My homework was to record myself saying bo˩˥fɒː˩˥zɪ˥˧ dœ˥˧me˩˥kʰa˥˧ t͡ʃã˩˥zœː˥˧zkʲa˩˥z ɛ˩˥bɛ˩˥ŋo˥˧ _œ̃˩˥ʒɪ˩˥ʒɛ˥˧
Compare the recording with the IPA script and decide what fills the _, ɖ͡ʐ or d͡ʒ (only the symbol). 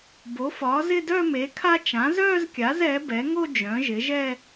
d͡ʒ